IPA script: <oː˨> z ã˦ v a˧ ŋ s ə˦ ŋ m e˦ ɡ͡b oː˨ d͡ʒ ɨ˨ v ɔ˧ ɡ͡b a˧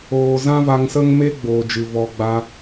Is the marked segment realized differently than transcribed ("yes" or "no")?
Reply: no